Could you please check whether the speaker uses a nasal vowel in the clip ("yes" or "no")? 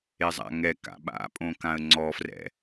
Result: yes